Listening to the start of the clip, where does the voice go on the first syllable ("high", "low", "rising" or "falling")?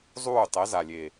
falling